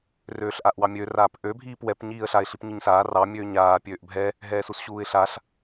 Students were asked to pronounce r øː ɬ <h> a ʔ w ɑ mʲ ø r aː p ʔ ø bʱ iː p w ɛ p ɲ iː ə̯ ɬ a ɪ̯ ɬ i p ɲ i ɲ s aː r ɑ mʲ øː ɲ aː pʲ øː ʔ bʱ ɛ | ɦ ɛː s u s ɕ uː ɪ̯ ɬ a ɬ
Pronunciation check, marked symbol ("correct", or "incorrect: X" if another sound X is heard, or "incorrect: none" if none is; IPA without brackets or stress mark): incorrect: ʔ